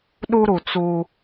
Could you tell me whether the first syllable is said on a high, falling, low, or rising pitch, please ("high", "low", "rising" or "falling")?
high